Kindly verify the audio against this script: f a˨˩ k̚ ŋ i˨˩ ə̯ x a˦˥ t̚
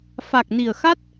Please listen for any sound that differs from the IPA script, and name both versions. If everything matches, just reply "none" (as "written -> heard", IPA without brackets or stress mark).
ŋ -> n